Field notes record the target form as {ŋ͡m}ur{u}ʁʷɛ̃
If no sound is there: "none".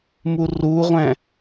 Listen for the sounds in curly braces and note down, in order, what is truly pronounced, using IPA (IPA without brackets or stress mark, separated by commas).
m, u